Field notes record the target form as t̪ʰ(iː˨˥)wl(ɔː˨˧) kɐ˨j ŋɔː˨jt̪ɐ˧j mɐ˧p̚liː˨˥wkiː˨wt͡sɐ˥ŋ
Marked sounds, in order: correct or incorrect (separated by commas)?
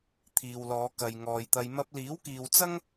incorrect, correct